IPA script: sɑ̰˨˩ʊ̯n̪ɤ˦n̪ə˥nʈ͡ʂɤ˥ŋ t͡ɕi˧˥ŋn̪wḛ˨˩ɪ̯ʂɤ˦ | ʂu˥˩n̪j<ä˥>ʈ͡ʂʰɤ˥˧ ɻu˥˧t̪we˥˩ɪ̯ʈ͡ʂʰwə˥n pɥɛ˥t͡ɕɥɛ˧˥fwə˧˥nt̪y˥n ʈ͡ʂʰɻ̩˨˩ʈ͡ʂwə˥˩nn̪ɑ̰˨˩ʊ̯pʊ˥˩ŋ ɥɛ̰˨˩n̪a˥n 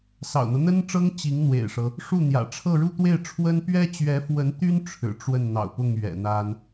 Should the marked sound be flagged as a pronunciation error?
yes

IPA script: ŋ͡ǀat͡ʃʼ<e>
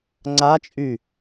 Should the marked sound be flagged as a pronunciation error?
yes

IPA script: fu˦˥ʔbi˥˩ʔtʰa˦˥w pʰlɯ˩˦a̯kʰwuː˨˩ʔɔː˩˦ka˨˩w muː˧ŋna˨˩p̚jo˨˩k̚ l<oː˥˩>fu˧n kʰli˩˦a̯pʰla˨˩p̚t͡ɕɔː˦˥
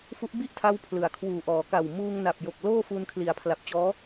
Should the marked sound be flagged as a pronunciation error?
no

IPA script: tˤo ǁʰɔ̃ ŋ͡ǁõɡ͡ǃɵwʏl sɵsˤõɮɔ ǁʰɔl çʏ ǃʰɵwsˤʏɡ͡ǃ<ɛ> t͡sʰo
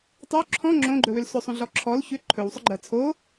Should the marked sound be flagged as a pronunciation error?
yes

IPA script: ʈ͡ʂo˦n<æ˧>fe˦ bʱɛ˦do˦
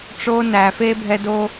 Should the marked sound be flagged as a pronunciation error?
no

